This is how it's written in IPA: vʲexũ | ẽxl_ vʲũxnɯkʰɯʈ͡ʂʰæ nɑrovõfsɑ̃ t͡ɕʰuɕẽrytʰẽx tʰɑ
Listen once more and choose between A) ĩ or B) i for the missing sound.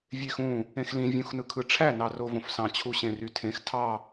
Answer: A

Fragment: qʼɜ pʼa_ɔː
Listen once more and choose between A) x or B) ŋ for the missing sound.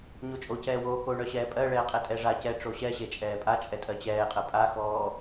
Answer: A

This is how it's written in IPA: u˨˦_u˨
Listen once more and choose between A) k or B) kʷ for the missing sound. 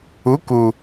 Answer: A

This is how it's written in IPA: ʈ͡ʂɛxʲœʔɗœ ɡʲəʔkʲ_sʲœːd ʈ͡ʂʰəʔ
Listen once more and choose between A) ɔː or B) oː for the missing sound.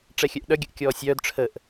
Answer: A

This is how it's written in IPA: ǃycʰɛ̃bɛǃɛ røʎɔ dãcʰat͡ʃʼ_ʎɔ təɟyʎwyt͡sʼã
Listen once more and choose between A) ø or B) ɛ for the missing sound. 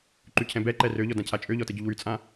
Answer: A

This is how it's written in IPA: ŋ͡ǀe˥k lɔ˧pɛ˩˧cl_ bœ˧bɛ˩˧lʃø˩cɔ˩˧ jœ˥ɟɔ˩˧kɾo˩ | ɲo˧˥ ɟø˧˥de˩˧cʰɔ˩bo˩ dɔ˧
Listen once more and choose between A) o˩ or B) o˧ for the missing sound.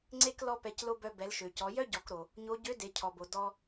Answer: B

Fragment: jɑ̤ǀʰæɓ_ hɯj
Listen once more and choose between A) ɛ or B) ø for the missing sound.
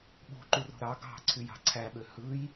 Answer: B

